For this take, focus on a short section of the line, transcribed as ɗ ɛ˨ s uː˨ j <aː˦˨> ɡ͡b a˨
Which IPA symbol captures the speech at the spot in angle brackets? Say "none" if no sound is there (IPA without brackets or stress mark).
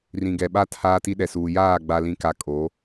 aː˦˨